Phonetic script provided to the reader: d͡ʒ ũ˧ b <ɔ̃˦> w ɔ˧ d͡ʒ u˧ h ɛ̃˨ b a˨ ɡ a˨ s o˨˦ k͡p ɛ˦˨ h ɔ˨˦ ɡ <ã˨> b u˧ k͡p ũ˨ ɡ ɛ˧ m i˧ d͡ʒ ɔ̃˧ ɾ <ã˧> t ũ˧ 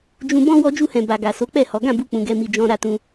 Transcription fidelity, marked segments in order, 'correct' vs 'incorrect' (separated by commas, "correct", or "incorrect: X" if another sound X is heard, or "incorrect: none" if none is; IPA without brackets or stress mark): correct, incorrect: ã˦˨, incorrect: a˧